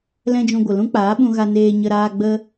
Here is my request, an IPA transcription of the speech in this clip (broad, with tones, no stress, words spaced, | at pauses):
lɛ̃˦d͡ʒũ˧ɡʷə˨ lũ˦k͡paː˨˦ɓũ˧ ɣa˧neː˧ɲə˧ɾaː˧ ɡ͡bə˦